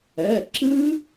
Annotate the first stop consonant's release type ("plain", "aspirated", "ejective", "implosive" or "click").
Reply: click